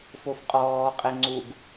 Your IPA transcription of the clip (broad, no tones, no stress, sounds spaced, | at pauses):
f o f qʼ ɔː qʼ ɛ ŋ͡ǀ u ɡ